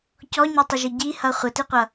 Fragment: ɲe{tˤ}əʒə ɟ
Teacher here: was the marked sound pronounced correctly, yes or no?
yes